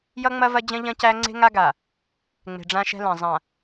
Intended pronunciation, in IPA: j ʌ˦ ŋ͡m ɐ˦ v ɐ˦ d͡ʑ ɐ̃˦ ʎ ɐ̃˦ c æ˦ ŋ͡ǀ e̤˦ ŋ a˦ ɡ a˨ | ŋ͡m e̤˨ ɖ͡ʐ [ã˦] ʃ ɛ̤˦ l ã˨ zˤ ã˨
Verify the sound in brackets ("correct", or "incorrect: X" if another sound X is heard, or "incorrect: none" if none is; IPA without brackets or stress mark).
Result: correct